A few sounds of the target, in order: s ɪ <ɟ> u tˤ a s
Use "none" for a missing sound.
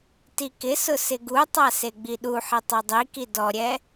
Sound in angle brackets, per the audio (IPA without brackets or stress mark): ɡ